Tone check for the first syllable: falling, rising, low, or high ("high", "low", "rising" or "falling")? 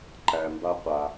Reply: low